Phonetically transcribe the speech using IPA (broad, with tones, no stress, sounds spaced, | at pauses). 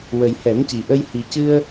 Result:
w ə˨˩ j h ɛ˨˩˦ m c i˨˩ ʔ ə˧ j h i˨˩ c ɨ˧ ə̯